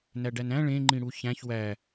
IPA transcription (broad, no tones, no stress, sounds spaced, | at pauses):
n æ ɖ æ n æ̃ ɭ ẽ ŋ͡ǃ ĩ ɽ u ç æ̃ ç w æ